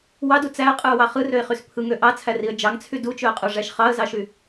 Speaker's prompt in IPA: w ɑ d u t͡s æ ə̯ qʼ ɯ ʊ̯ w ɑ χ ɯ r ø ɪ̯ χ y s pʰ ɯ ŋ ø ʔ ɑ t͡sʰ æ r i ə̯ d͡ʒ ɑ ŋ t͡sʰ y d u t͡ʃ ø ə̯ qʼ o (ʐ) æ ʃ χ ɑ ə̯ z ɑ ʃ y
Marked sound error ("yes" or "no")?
no